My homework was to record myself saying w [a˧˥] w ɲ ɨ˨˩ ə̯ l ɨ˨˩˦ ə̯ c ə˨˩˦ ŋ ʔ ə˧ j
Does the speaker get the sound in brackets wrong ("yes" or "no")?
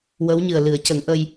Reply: yes